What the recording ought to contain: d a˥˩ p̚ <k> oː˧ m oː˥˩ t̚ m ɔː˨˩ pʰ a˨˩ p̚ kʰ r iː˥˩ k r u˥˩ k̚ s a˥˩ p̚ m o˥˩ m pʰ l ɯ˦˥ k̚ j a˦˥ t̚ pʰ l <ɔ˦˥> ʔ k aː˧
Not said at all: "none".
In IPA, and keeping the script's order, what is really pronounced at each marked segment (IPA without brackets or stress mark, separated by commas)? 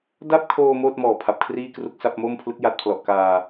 kʰ, ɔ˨˩